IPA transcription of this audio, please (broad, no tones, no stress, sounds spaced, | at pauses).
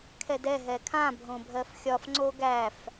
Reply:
kʰ ɛ d ɛ ɦ ɛ kʰ ã bʱ õ bʱ ɜ f xʲ ɒ f ŋ͡ǀ o ɡ æ f